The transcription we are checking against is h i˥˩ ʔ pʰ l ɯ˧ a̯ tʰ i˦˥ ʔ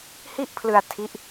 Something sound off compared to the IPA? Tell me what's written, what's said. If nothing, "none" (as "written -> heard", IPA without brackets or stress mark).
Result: none